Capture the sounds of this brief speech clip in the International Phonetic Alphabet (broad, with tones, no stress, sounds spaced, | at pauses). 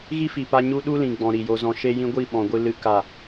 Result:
ɣ i˦ f i˨ p a˧ ɲ u˦ ɗ u˦ l ĩ˨ ɡ͡b ɔ̃˨ ɾ i˨ j o˧ z ɔ̃˧ ʃ e˧ j ĩ˧ ɡʷ i˦˨ ɓ ɔ̃˨ ɡʷ ɨ˧ l ɨ˧ k a˦˨